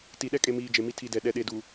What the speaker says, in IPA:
ti˨ɗɛ˦kʼe˨miː˨ d͡ʒe˨mi˦ tʰi˨ dɛ˨ ɗɛ˨ɗe˨duː˨

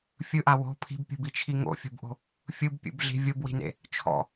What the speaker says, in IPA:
fʲɯʔa wo̤ pʰi̤bpʲṳbit͡ʃʰi ŋo̰fʲo̤bʔo̤ | fʲɯbpʲṵbɮi̤ vʲobwi̤nḛ | t͡ʃʰɔ̰

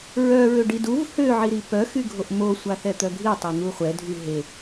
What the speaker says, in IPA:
ɹœ ɹøɖiduv hø ʕiɾipœ xyɡʱoʔmo sʷaθɛt̪œɡʱi tˤon̪uχʷɛ dʱyɦe

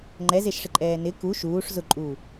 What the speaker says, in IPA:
ŋ͡ǃɛzeʃʂɪǃʼɛː nɪ ku ʃuːʂ zʊǃʼuː

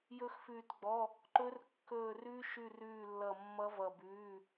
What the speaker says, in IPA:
jɵ˦˥xfʉː˦˨tɡ͡bɔ˧˥˧ | ǃɵ˦˥r kːɵː˦˨rʉ˦˥ ʃʉ˦˨rʉː˦˨lːʌ˦˨ mːʌ˦˥vʌ˦˨bʉː˧˥˧

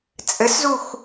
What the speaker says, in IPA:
t͡sʼɘszux

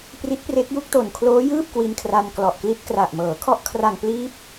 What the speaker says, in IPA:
pri˦˥t̚pre˦˥k̚ju˥˩k̚ to˨˩nkʰloː˦˥jɯː˥˩p̚ kwi˧nkʰra˧nklɔ˨˩ʔ kli˦˥t̚kra˨˩ʔmɤː˩˦ kʰɔ˦˥ʔkʰra˨˩ŋpliː˦˥p̚

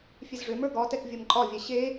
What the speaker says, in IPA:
fʲezʐømə˞ ɡɒtɛk vʲə˞mǃʼɒvʲɛ ɕe

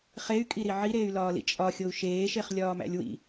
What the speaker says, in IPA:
χey̯kʼiɾi ʕiɾeːy̯lɒːlḭ t͡ʃʼɒxʲou̯ ʃeːʃeχlʲɒːmæ̰lʲ wḭ

